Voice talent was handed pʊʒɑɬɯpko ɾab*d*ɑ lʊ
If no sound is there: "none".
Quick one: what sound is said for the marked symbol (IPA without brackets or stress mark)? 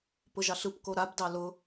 d